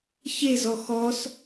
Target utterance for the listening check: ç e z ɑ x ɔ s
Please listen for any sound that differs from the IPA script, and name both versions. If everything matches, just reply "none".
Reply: ɑ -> ɔ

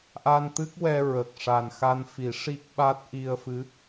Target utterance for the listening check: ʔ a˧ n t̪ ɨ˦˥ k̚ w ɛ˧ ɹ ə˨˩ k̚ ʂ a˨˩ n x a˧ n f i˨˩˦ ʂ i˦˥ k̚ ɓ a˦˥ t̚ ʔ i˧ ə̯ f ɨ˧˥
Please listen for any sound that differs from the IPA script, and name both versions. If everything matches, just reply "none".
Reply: none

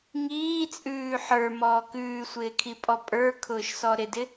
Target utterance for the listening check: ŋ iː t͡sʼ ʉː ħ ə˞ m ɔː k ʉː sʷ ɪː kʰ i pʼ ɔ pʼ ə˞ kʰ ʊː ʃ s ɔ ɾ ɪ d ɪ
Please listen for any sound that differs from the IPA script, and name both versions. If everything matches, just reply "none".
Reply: none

